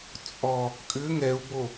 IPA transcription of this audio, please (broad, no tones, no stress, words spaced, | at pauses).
t͡sʼɔ | kʼʏ ŋɛu̯bo